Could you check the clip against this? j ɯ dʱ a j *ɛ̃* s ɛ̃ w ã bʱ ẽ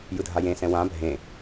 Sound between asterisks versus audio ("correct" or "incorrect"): incorrect